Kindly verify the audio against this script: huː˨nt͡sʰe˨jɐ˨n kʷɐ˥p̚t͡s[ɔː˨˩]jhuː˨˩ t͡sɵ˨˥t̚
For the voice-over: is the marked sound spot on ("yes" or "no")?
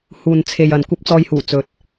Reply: no